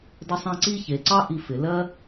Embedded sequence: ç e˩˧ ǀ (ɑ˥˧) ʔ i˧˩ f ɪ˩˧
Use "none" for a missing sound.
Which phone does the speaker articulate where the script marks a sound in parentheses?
ɑ˥˧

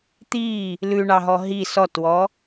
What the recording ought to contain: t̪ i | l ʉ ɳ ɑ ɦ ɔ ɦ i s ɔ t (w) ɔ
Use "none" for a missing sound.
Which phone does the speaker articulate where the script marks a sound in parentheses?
w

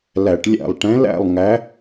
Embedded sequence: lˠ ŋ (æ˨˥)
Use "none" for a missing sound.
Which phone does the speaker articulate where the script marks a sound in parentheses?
æ˨˥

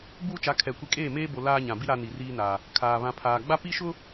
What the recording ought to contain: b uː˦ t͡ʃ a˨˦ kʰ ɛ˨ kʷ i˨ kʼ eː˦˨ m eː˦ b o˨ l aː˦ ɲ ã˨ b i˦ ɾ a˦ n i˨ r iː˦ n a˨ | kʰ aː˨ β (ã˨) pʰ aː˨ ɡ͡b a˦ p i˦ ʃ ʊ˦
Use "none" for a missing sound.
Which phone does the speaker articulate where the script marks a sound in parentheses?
ã˨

